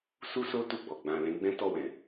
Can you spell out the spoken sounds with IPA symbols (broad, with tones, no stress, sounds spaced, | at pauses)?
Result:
s u˦ s o˦ t u˦˨ ɡ͡b ɔ˨ ɡ͡b ã˨ l ɛ̃˨˦ ɡ͡b ɛ̃˦ t ɔ˦˨ w ɛ̃˨